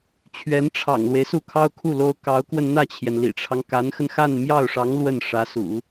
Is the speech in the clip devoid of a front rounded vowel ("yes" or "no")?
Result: yes